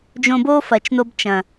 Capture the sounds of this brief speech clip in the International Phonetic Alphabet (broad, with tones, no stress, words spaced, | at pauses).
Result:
d͡ʒõ˧bo˦ fɐ˨t͡ʃno˧b t͡ʃɐ̃˨